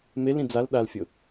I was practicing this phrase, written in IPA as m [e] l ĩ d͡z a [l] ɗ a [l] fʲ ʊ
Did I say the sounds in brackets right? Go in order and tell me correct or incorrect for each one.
correct, correct, correct

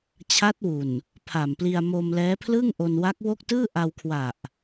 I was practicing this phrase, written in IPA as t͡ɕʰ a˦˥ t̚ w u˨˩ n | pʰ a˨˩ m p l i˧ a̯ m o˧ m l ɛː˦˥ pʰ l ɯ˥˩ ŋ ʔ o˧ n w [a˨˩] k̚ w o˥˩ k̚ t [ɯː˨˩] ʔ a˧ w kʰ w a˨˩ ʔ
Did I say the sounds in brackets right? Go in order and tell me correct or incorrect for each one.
incorrect, incorrect

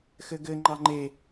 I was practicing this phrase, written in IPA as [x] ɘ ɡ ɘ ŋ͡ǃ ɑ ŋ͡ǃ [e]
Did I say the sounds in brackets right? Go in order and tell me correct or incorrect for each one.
correct, correct

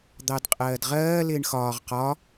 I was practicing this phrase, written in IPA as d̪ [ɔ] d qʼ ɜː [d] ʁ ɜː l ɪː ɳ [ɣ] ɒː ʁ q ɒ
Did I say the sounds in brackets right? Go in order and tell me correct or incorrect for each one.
incorrect, correct, incorrect

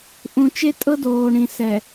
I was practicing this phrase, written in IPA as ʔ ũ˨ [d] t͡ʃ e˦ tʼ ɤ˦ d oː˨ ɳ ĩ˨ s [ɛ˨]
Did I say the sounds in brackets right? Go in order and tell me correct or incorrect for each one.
incorrect, correct

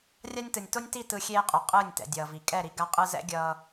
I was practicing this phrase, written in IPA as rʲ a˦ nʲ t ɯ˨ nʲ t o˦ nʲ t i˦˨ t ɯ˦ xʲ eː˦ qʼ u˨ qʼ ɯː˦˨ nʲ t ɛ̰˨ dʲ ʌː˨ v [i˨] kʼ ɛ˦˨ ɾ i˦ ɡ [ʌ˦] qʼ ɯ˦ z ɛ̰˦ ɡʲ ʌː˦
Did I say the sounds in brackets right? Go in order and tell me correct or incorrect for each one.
correct, incorrect

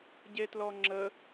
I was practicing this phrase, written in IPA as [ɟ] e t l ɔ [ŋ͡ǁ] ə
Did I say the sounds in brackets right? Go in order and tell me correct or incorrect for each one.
correct, correct

